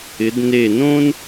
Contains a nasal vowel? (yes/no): yes